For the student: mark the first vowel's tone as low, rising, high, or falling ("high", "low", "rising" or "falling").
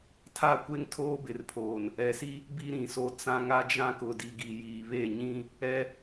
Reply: falling